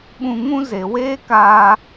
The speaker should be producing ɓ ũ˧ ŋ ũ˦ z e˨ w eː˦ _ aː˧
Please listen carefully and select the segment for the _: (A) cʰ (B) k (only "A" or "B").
B